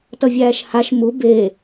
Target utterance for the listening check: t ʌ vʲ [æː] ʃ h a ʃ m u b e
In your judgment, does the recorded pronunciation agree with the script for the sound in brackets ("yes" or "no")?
yes